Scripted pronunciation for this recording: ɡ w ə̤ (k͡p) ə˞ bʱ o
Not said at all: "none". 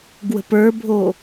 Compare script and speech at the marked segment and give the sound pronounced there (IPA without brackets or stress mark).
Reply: p